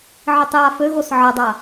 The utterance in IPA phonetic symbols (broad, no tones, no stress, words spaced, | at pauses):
ʕitˤjaføɣos ʕədˤa